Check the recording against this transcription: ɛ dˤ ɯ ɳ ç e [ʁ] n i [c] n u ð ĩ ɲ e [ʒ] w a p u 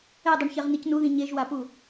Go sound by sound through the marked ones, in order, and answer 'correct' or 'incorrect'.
correct, correct, correct

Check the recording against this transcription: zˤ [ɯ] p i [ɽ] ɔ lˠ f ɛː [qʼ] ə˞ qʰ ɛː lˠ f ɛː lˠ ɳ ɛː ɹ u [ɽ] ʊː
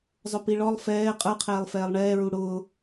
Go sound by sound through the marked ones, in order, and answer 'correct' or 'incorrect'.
incorrect: ʊ, incorrect: ɭ, correct, correct

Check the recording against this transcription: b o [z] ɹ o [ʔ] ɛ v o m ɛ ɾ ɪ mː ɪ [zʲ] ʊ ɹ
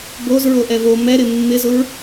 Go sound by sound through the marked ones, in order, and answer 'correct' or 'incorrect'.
correct, correct, incorrect: z

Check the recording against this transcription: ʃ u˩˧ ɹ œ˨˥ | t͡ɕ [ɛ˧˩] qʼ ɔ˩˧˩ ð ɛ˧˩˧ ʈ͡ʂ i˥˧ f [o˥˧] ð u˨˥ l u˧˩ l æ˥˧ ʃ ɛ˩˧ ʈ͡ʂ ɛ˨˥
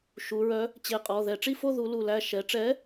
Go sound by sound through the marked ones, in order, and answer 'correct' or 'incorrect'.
incorrect: e˧˩, correct

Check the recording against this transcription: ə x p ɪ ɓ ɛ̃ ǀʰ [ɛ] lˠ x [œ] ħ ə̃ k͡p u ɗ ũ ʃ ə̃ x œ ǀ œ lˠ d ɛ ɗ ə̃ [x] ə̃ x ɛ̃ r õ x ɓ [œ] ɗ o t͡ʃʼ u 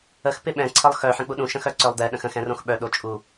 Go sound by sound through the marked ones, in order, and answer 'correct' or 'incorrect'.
incorrect: ə, correct, correct, correct

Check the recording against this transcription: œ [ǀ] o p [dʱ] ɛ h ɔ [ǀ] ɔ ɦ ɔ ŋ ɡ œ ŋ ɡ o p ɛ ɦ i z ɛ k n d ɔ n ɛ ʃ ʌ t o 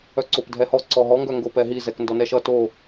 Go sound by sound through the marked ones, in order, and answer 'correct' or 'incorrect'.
correct, correct, correct

